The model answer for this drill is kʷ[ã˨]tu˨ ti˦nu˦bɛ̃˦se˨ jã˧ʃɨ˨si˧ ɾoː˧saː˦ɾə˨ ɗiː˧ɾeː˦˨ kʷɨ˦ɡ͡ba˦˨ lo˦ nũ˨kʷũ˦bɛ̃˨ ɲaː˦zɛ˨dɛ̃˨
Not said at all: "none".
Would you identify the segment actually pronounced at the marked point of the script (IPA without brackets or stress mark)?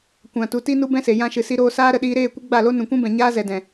ã˨